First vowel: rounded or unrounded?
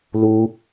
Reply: rounded